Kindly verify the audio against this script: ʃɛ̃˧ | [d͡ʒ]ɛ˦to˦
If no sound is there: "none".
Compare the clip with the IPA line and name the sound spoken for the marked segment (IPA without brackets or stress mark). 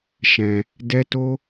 d